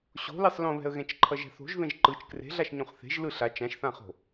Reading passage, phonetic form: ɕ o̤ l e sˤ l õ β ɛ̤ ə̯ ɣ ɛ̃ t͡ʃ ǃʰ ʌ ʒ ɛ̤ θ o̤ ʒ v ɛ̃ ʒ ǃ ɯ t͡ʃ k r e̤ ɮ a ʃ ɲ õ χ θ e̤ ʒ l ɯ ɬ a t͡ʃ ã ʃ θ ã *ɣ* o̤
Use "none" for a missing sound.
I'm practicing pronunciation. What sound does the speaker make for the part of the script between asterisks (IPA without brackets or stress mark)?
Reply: χ